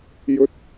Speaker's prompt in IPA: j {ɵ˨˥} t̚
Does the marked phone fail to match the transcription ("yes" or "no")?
yes